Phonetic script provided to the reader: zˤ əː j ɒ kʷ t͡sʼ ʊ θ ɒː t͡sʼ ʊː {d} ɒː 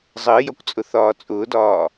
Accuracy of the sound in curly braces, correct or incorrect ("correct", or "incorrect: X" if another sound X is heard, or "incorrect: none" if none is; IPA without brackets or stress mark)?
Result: correct